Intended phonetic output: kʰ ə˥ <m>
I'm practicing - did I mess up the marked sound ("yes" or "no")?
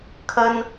yes